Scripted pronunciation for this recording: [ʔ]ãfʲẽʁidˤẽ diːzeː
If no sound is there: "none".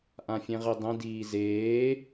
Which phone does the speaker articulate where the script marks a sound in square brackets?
ʔ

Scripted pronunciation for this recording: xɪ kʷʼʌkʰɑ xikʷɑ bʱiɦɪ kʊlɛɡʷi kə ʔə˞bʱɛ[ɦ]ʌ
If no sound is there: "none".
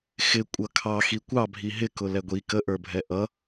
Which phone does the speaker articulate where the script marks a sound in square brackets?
ʔ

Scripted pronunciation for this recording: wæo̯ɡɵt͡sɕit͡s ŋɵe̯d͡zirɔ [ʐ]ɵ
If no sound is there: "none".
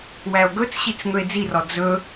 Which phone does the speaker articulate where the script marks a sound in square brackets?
d͡z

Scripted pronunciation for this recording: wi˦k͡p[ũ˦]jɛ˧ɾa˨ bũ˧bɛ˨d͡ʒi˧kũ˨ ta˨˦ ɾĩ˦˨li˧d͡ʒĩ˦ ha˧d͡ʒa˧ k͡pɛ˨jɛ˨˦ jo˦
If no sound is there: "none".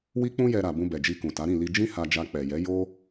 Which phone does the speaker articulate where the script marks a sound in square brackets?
ũ˦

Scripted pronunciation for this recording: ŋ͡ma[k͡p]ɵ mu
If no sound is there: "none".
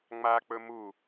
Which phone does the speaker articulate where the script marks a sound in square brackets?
k͡p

